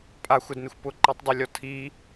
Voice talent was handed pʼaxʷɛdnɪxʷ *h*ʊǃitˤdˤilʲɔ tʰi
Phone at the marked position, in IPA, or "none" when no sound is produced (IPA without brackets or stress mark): p